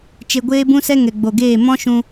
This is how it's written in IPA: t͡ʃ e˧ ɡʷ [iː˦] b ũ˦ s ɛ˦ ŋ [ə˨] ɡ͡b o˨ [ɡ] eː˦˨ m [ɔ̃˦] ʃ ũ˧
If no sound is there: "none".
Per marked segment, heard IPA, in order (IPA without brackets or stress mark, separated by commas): eː˦, ɛ˨, ɡ, ɔ̃˦